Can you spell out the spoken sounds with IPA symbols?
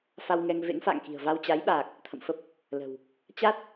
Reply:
fa˧wŋɛ˧ŋ vḛ˧˥ŋfa̰ː˧˨ŋki̤˨˩ə̯ va˧wt͡ɕa˨˦jɓaː˨˩k̚ | t̪ʰə̰˧˨mfə˦˥p̚ | lə̤˨˩w | t͡ɕa˦˥t̚

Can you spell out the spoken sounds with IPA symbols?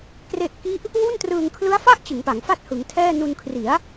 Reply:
kre˦˥ʔ ki˦˥ʔ | wu˥˩ntrɯː˧ŋ kʰlɯ˦˥a̯fa˥˩ʔ t͡ɕɯ˩˦ŋpa˩˦ŋ fa˥˩t̚hɯ˩˦ŋtʰɛː˥˩ nu˧nkʰri˩˦a̯

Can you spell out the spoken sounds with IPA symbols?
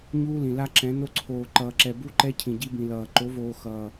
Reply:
ɲuː˦lĩ˨ la˦ǁɛ̃˨˦ no˦ǀʰoː˨ǃʌː˨ǁɛ˨ bu˦ǃɛ˦ cʰĩ˨ɟi˦bĩ˨lʌː˨ ǃo˨˦voː˨ xʌː˨

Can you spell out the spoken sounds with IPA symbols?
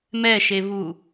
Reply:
mɛʃeβu

